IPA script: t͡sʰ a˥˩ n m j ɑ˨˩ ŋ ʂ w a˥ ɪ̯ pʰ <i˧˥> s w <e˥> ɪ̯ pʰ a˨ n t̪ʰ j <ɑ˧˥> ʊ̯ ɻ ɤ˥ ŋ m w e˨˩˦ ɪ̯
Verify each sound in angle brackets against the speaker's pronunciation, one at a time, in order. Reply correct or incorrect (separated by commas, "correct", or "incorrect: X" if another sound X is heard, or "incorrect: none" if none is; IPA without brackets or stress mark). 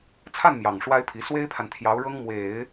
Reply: correct, correct, correct